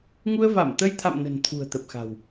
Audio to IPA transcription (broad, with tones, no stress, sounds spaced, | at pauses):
ŋ u˧ ə̯ v a˧˩ m t̪ ə˧ j t̪ʰ a̰˧˨ m n ə̤˨˩ n t̪ʰ ṳ˨˩ ə̯ t̪ ə˨˩ p̚ x a̤˨˩ w